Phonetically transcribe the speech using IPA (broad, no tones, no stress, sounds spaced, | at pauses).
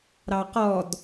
ɾ ɑ q ɔ d